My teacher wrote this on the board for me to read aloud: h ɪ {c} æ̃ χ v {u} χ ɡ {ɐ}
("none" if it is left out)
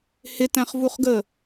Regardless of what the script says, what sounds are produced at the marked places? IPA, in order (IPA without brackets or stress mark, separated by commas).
t, u, ə